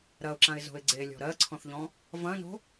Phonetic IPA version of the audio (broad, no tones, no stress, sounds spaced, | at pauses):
ɾ ɐ ʊ̯ ǁ ã ɪ̯ z o̤ ɪ̯ ɡ͡ǀ e lʲ ɔ̤ ɾ ɜ ǀʰ ɔ̃ θ ʎ ɔ̃ | v ɐ̃ n o̤